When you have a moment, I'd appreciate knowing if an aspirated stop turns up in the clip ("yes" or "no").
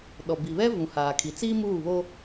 yes